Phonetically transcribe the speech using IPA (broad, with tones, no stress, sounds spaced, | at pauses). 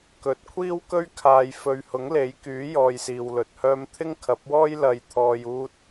k ɵ˨ t̚ kʷʰ iː˥ w k ɵ˥ ɥ kʰ aː˨ j f ɵ˨ ɥ h ʊ˨˥ ŋ l e˨˥ j k yː˨˥ j ɔː˧ j s iː˨ w l ɵ˨ t̚ h œː˥ m t̪ʰ ɪ˥ ŋ kʰ ɐ˨˥ p̚ w ɔː˥ j l ɐ˨˧ j t̪ʰ ɔː˨ j uː˧ t̚